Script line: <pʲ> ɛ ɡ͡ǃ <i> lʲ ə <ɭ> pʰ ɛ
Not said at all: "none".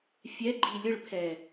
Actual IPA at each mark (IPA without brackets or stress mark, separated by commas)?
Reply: fʲ, i, ɭ